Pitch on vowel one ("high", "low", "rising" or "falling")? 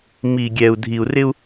low